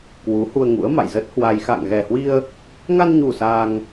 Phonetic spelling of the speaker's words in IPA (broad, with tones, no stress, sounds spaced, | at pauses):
k w u˨˦ h u˧ ə̯ ŋ ṵ˧˥ ə̯ m a̰˧˨ j z ə˦˥ t̚ h w a˧ j x a̰˧˨ ŋ ɣ ɛ˨˩ h w i˧ ə̯ | ŋ a˧ n ɲ u˨˩ s a˧ ŋ